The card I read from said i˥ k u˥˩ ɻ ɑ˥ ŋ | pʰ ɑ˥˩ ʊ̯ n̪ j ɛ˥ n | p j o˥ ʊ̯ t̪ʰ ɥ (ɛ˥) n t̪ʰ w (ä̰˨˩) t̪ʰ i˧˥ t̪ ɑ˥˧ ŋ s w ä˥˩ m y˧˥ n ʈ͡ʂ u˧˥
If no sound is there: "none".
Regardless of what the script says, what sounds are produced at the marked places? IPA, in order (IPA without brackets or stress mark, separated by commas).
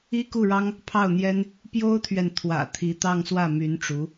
ɛ˨, ä̰˨˩